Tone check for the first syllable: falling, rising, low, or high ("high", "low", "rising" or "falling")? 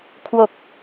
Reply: low